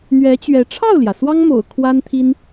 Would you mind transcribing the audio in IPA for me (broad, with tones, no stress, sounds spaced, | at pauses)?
n̪ ɥ ɛ˧˥ t͡ɕ ɥ ɛ˧˥ ʈ͡ʂʰ ɑ˥˩ ʊ̯ l j ä˩ s w ɑ˥ ŋ m o̰˨˩ ʊ̯ kʰ w a˥ n t̪ʰ i˥ n